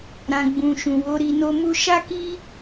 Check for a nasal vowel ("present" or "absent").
present